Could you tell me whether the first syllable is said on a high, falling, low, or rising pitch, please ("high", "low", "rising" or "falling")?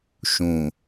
low